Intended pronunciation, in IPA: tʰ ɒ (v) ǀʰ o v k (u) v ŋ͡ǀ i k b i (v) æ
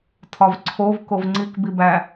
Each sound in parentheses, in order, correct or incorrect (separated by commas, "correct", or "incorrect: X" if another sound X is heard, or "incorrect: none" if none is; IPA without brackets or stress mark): correct, incorrect: o, incorrect: b